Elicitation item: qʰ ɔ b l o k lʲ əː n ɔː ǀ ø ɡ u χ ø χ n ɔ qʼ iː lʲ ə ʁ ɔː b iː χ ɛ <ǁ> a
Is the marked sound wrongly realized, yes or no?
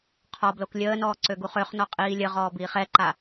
yes